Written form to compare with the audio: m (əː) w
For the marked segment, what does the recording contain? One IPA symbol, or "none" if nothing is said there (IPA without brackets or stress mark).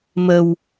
ə